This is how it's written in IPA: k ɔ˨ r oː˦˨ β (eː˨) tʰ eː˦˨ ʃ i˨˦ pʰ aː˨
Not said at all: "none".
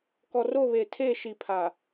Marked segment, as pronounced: eː˨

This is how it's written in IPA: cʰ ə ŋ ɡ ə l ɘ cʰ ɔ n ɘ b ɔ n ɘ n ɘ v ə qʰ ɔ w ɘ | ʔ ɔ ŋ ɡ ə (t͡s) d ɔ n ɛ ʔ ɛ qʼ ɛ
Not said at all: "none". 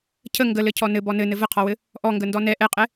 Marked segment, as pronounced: n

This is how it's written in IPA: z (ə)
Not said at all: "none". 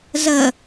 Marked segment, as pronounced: ə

